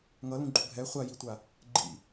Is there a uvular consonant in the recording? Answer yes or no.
yes